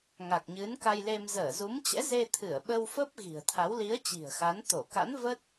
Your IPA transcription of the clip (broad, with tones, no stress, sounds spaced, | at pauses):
ŋ a˨˩ k̚ ɲ ɨ˨˦ n k a˧ j l e˧ m z əː˧˩ z u˨˦ m t͡ɕ ɛ̰˧˥ z e˧ t̪ʰ ɨ˧˩ ə̯ ɓ ə˧ w f ə˦˥ p̚ ɣ i̤˨˩ ə̯ t̪ʰ a˨˦ w l i˨˦ ə̯ t͡ɕ i̤˨˩ ə̯ x a˨˦ n t̪ o˧˩ k a̰˧˥ n v ə˦˥ t̚